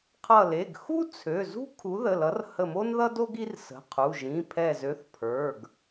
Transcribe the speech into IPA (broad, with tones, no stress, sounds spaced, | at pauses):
qʰ ʌ˧˩ l e˩˧˩ ɡ x u˥ t͡sʰ ø˩˧˩ z ṳ˥ kʰ u˨˥ ð ə˩˧˩ l ʌ˨˥ r h ə˧˩ m o˥ n ð ʌ˥ d o˥ ɡ i˥ r s ə̤˩˧˩ qʰ u˩˧˩ ʒ ĩ˩˧˩ pʰ ɛ˧˩ z ø˨˥ θ pʰ ə˞˩˧˩ ɡ